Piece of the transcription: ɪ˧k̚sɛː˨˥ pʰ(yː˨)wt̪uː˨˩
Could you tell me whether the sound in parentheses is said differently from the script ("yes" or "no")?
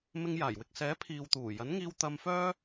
yes